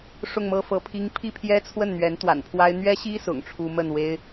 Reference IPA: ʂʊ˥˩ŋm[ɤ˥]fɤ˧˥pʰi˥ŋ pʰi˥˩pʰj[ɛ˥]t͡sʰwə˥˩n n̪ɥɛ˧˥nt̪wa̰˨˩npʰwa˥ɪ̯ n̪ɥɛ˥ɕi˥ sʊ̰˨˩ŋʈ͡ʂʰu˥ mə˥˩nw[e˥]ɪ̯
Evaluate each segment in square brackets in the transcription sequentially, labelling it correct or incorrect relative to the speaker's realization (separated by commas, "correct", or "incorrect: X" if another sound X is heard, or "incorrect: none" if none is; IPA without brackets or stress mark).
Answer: correct, correct, correct